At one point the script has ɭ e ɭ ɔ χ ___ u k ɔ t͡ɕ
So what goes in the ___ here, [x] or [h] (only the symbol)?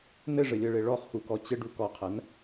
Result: x